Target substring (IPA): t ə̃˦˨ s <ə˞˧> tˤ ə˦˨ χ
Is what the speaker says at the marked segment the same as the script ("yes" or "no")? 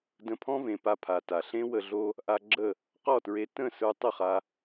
yes